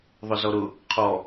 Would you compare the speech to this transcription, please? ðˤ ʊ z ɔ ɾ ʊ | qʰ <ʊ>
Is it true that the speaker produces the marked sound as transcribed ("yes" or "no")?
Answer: no